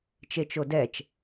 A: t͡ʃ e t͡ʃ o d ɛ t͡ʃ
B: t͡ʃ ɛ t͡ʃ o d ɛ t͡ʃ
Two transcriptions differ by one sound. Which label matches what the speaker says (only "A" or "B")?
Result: A